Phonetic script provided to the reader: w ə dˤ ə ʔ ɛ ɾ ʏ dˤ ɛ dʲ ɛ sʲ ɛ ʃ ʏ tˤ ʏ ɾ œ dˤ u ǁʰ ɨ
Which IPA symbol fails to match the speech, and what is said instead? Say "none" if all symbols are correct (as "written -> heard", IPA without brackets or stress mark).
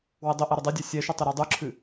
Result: œ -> ɛ